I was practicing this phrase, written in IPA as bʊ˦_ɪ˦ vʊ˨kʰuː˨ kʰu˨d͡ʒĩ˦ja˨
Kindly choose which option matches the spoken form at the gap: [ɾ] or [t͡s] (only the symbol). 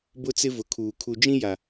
t͡s